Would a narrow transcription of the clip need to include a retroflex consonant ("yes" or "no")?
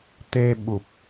no